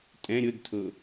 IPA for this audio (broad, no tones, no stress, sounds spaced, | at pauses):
tʼ ɛ̃ ɾʲ ʊ d tʰ ʊ